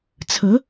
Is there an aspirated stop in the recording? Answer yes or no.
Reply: yes